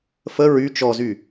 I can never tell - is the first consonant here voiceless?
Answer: yes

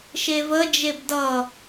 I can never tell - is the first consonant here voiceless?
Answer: yes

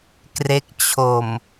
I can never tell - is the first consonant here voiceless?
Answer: yes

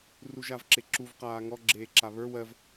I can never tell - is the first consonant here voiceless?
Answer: no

